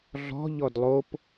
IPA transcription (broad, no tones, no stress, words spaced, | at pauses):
ɮɔ̤ ʎɔdlˠop